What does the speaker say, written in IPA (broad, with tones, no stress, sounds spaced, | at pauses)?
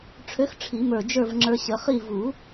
ʈ͡ʂʰ ø˧˥ x ʈ͡ʂʰ i˨˩˦ m ə˞˧˩ d͡ʒ ə˞˥˨ v ŋ͡ǁ ə˞˧ ɕ ə˨˩˦ χ i˥˨ v u˨˩˦